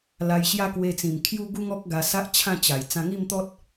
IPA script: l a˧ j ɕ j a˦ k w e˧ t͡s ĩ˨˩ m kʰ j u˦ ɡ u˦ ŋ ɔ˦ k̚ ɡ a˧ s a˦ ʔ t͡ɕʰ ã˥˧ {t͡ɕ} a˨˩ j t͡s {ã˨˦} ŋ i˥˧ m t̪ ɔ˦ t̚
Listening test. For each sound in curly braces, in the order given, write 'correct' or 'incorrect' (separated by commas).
correct, incorrect